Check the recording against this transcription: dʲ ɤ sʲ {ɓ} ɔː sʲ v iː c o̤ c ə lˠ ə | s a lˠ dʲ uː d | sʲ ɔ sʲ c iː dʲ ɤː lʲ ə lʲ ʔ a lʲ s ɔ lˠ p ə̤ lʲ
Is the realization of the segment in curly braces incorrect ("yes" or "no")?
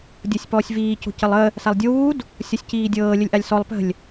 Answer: yes